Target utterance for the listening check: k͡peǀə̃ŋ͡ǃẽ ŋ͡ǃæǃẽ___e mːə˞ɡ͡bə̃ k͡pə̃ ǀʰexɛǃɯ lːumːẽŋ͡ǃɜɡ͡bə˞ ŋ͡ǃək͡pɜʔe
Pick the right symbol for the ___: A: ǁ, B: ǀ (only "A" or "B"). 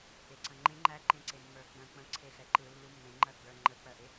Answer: B